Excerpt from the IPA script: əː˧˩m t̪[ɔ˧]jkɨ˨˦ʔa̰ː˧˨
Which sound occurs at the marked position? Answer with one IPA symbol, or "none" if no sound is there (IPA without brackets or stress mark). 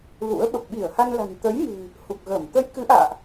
ə˧